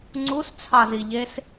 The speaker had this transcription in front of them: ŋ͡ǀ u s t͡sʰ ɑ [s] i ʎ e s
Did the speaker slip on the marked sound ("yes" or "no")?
yes